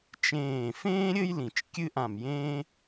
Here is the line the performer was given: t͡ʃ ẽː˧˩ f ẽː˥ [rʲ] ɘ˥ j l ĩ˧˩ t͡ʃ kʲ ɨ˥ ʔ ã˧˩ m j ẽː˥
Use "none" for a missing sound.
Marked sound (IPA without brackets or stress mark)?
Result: ɾʲ